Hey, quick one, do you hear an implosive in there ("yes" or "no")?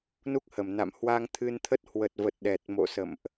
yes